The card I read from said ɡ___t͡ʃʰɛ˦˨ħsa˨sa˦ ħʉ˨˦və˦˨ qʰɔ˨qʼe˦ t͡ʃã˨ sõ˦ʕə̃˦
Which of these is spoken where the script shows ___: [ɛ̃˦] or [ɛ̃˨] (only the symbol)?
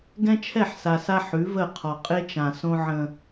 ɛ̃˦